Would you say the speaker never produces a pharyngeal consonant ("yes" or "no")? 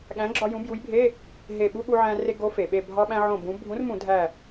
no